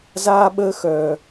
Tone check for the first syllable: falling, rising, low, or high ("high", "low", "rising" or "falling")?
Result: high